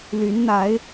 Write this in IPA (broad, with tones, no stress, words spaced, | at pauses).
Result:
ly˨˦nn̪a˨˦ɪ̯